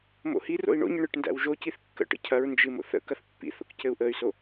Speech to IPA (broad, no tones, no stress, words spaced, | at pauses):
mo̰hi ro̰i̯ɳo̰ɲə ɳɨʈndæ̰wʒociθ kːə̰ʈə̰cʰɐɹ nd͡ʒɨmo̰θə̰ kɐθpːḭθo̰k cɘu̯ʔəy̯so